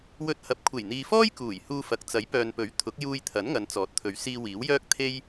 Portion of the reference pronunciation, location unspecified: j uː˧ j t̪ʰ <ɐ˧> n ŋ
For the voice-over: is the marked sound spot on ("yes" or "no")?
no